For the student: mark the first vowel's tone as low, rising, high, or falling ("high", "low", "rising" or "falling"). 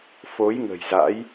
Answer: rising